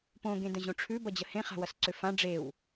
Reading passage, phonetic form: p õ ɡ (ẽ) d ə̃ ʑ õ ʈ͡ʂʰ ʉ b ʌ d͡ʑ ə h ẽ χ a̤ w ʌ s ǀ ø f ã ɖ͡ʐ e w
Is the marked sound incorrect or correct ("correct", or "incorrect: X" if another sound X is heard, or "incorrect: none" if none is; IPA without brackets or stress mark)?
correct